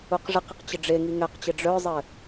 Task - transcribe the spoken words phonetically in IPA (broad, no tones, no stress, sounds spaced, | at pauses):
u q ʐ ɪ q ɪ q t͡ɕ ɪ ɖ͡ʐ e ŋ i ŋ ɛ q t͡ɕ ɪ ɖ͡ʐ œ zˤ ɘ